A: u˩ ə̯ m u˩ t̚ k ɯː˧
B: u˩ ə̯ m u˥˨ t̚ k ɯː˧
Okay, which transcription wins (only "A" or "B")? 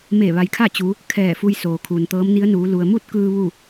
B